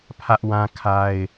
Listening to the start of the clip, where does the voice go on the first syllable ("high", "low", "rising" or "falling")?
high